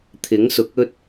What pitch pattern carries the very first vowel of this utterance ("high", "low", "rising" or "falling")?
rising